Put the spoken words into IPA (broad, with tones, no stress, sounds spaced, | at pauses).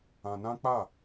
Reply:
ã˧ n ã˦ k͡p a˦˨